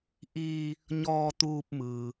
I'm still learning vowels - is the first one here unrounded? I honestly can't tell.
yes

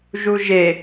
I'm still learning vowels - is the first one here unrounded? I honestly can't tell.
no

